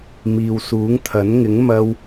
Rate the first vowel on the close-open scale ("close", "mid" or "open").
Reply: close